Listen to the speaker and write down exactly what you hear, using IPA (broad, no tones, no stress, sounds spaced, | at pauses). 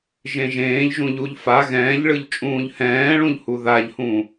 ʒ ẽ ʒ ẽː ʎ ʒ ũ ʎ u ʎ f a ɣ ɛ̃ː ʎ ɭ ɯ ʎ t͡ʃʼ ũː ʎ h ɛ̃ː ɭ ũ ʎ h u ð a ʎ h ũ